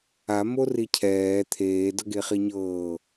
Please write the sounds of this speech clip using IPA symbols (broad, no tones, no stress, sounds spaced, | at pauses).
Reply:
a m o r i cʰ ɛː t̪ʰ eː d ɤ ɡ e χ i ɲ ɤː